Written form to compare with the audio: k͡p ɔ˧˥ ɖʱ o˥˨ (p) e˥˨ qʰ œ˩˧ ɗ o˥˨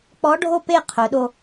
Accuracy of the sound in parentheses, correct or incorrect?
correct